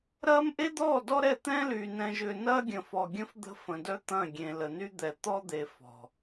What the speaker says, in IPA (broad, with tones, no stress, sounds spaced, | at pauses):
ɾ ɐː˦ m ʔ e˦ d̪ ɔː˦˨ d ɔ˦ ɾ ɛ˦˨ t̪ ɛ̃ː˦ l yː˨ n ɛ̃˨ ʒ ʏː˨ n ɐː˦ ɡʲ ə̃˨ f ɔ˨ ɡʲ ə̃˦ f d̪ ə̤˦ f ə̃˨ d œ˦ t̪ ɐ̃˦˨ ɡʲ ẽ˨ l ə˨ n y˦ d̪ ɛ˨ t̪ ɔ˦ d̪ e˨ f ɔ̤˨